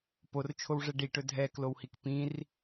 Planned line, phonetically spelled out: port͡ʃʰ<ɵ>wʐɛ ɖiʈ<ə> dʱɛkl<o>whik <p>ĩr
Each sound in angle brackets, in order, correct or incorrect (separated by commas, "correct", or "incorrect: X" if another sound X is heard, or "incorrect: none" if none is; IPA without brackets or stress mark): incorrect: o, incorrect: ɵ, correct, correct